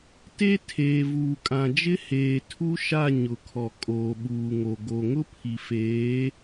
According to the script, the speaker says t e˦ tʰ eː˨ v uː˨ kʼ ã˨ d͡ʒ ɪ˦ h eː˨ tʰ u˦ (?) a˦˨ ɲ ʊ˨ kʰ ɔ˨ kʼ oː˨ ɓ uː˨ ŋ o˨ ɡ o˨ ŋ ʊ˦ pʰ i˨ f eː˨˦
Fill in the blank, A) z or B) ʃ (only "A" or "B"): B